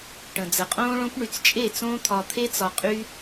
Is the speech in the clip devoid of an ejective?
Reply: no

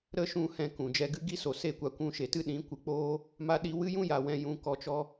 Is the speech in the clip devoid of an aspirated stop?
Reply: yes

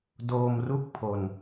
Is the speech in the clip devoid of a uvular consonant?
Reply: yes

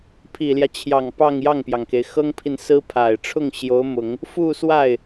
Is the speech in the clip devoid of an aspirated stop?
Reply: no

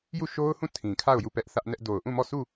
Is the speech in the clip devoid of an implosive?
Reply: yes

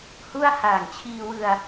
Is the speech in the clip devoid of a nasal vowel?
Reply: yes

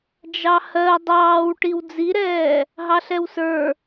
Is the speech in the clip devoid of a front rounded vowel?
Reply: yes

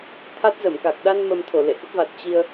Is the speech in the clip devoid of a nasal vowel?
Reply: yes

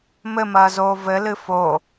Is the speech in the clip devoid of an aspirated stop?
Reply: yes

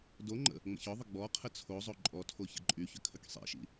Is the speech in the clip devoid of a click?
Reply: no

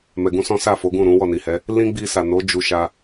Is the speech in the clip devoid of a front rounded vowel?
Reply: yes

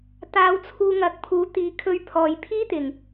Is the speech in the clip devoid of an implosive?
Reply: yes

